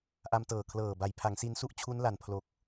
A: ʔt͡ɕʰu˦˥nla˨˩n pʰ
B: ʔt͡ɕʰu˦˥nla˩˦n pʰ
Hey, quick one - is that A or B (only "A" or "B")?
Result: A